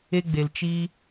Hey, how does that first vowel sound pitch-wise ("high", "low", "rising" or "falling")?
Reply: high